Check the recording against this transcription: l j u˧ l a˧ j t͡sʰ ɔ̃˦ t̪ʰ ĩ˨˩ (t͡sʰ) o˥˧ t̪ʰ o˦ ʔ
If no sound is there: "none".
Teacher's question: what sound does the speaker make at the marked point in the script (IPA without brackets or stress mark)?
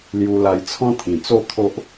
t͡s